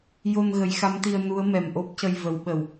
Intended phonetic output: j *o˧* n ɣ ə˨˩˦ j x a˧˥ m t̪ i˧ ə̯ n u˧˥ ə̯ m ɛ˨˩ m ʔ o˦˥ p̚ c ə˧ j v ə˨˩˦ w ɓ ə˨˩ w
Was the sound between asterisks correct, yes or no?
yes